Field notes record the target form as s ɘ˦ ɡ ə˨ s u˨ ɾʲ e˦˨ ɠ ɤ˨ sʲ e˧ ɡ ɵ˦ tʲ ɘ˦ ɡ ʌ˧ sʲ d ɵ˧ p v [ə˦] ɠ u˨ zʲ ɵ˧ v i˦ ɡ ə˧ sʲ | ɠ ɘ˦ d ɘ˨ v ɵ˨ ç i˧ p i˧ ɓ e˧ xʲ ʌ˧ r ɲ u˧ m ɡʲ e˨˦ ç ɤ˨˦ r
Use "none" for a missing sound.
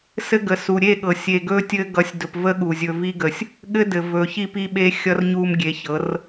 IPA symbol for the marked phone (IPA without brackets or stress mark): ə˦